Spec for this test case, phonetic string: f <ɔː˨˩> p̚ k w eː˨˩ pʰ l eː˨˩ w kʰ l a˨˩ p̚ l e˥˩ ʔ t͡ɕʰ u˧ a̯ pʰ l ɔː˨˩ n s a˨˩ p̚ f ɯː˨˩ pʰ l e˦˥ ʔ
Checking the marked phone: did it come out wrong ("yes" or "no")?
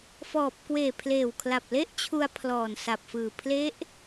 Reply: no